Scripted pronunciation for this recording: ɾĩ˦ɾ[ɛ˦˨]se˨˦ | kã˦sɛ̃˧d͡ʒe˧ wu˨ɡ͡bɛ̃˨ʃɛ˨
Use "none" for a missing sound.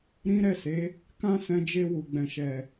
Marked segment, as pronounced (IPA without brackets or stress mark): ɛ˦˨